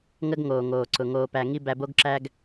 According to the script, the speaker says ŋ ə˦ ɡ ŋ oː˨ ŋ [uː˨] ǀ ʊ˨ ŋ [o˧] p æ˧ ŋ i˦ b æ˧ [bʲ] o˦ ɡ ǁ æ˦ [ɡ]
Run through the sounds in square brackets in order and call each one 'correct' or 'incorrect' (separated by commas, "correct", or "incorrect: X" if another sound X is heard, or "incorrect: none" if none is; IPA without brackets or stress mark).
incorrect: oː˨, incorrect: oː˧, incorrect: b, correct